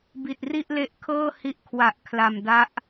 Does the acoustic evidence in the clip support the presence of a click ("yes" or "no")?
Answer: no